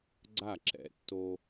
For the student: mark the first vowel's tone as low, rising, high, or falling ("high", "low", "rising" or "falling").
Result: falling